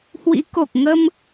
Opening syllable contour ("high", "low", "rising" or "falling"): rising